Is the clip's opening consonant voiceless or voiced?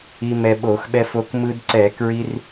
voiced